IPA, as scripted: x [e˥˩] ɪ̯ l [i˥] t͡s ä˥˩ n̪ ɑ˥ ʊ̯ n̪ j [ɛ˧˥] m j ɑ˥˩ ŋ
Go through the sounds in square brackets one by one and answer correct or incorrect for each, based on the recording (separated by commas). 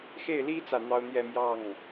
correct, correct, incorrect